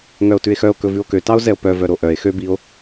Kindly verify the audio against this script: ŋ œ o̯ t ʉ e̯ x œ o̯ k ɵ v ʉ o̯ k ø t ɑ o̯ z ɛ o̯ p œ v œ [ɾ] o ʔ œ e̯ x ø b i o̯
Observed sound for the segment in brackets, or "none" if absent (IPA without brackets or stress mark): ɾ